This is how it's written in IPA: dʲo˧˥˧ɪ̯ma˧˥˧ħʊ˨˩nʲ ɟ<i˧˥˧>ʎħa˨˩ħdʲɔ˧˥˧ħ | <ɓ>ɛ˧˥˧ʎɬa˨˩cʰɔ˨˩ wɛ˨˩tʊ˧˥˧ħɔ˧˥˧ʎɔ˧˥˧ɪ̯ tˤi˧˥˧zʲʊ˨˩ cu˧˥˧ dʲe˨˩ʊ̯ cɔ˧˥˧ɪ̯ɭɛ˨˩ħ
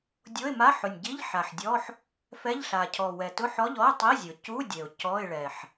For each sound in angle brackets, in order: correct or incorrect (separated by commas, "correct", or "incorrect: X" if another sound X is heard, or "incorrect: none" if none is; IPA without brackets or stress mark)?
correct, incorrect: f